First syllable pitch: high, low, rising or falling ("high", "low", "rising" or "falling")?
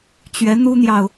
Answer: rising